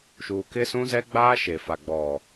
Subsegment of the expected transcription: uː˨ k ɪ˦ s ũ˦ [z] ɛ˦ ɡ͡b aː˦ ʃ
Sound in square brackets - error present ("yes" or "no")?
no